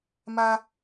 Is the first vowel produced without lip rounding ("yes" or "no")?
yes